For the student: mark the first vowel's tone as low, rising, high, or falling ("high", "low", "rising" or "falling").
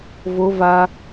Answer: high